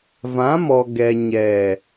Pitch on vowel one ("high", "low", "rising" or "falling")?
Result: rising